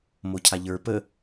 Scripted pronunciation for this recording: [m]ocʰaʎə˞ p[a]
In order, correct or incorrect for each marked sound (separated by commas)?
correct, incorrect